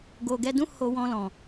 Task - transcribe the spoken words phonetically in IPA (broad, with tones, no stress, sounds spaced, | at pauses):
ɡ o˨ ɡ ɛ˧ d ũ˦ h o˧ w ɔ̃˧ l ɔ̃˨